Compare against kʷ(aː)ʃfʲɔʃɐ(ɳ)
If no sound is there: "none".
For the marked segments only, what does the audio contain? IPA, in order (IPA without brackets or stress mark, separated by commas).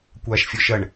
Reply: aː, ɳ